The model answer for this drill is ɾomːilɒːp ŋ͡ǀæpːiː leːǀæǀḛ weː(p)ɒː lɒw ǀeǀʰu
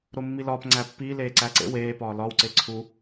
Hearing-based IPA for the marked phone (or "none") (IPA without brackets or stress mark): p